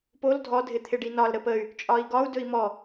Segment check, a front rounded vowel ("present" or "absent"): present